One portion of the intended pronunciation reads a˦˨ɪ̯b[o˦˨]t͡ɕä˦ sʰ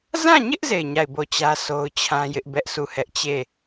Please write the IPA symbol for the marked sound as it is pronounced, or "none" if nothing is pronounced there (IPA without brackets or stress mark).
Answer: o˦˨